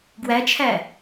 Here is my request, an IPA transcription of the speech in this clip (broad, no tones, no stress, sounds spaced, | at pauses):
ɡ w æ t͡ʃʰ æ